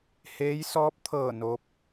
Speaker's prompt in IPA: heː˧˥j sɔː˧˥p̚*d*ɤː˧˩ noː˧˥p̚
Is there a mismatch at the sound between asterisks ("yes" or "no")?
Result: yes